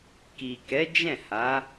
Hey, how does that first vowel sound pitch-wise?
low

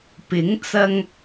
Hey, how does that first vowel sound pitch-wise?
rising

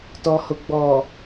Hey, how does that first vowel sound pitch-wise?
low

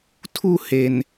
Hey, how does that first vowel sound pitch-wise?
falling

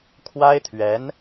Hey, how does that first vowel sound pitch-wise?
high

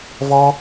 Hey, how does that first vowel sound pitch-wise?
high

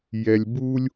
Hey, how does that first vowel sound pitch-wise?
low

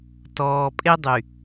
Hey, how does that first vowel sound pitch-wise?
low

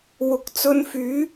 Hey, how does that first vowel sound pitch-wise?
rising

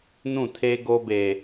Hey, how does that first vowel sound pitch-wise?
falling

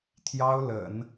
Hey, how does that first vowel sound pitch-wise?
high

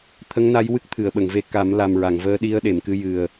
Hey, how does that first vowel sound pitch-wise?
rising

